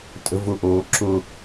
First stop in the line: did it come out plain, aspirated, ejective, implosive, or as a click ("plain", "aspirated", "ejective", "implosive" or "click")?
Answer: ejective